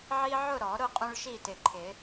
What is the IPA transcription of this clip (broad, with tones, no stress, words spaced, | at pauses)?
ʕi˦ʕʊ˥˨ɾɔ˨˩˦ ɾʊ˥˨ qʼũ˦ɭʃi˥˨tɪ˨˩ǃʰɪ˨˩˦